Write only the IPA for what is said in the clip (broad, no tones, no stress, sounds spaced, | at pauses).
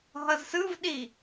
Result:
ɦ ʌ z s ɯ v ɗ i